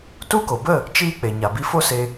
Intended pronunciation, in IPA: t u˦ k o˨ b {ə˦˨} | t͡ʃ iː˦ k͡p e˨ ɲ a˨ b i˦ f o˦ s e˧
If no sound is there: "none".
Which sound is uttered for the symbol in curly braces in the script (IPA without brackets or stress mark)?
ə˦˨